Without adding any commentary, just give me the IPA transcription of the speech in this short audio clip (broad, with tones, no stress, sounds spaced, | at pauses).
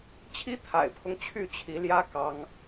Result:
t͡ɕʰ i˦ t̪ʰ a̰˨˩ ɪ̯ pʰ ʊ˦ ŋ t͡ɕʰ y˥˨ t͡ɕʰ i˨˦ l j ä˦ k ɑ˦ ŋ